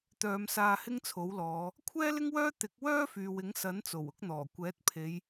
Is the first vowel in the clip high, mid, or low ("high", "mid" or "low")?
mid